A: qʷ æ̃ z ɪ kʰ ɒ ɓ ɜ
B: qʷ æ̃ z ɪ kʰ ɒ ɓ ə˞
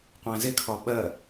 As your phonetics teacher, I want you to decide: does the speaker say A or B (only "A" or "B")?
A